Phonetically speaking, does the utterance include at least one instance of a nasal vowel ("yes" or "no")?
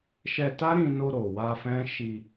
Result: yes